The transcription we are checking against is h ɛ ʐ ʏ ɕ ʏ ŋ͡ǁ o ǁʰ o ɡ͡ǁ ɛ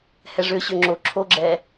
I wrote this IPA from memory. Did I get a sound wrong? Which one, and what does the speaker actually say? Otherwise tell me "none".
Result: none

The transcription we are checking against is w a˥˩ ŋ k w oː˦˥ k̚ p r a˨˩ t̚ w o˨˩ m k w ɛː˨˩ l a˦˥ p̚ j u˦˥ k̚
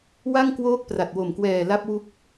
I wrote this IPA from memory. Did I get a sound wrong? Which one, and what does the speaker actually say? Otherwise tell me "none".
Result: j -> w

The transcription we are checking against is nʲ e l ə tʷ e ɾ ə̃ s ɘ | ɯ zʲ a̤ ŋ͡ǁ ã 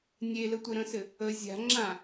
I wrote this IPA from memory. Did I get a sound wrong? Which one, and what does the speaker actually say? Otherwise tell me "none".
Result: ɯ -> ə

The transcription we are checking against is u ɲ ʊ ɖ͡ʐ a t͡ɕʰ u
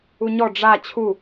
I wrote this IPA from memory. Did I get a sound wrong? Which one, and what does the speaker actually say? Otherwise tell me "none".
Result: ʊ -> ɔ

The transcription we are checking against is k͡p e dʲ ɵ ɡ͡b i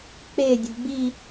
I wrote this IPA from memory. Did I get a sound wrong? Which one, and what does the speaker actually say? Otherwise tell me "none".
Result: ɵ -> ʊ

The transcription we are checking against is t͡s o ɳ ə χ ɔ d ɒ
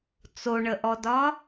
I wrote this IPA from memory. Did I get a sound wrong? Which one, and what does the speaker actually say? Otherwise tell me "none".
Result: χ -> ʔ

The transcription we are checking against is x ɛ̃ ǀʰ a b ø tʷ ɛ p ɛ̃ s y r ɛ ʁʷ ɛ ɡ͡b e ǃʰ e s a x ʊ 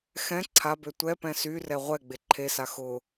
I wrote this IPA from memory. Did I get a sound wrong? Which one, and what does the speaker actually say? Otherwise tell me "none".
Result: none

